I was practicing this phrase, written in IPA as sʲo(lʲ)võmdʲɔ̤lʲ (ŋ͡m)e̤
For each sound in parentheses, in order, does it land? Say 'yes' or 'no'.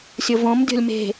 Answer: no, no

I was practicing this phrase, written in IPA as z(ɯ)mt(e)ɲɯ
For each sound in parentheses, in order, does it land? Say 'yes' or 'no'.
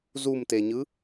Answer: no, yes

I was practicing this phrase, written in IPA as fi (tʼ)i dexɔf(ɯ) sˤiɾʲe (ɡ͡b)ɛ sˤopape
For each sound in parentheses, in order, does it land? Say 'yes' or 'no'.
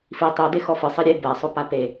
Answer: no, yes, no

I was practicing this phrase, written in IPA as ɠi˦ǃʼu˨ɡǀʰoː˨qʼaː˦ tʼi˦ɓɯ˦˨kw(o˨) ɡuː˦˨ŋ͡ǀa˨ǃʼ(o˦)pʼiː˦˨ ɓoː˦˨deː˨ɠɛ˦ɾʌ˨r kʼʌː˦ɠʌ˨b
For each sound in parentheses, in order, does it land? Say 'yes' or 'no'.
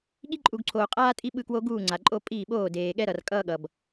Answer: no, yes

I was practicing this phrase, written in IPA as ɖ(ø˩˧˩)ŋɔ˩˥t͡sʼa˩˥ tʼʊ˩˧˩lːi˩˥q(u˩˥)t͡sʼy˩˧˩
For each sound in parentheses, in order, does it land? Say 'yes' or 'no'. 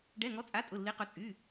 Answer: no, no

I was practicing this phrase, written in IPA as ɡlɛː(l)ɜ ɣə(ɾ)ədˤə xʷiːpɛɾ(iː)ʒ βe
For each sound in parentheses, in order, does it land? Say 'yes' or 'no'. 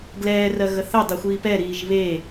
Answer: no, no, yes

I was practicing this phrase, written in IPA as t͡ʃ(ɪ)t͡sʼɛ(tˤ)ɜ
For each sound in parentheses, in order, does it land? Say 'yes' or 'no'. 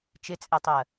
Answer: yes, yes

